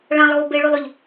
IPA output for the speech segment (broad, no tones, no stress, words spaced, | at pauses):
ɭãlˠɣo beɭylˠʏʎ